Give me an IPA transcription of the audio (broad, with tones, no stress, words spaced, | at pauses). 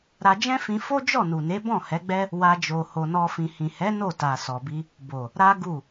ɾa˧d͡ʒɛ̃˦fĩ˧ fo˦d͡ʒɔ˦˨ nu˨ne˨˦ bɔ̃˦˨hɛ˨˦ɡ͡bɛ˦ | wa˧ d͡ʒo˨ ho˧nɔ˦fĩ˧ hĩ˨hɛ˨˦ no˦˨ta˨sɔ˨bi˧ | bo˨ | ɾa˦ɡu˦˨